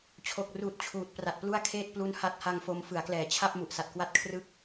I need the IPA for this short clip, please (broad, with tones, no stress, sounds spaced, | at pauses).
t͡ɕʰ o˨˩ k̚ r uː˨˩ t̚ t͡ɕʰ uː˨˩ t̚ p r a˨˩ t̚ p l u˥˩ a̯ kʰ eː˥˩ t̚ p l u˦˥ n h a˦˥ t̚ h a˧ ŋ f o˧ m f ɯ˩˦ a̯ k l ɛː˩˦ t͡ɕʰ a˥˩ p̚ m u˨˩ ʔ s a˨˩ t̚ k w a˥˩ t̚ kʰ r ɯ˦˥ k̚